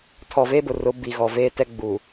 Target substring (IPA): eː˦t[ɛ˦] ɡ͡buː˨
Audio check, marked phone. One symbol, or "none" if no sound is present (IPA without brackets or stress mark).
ɛ˦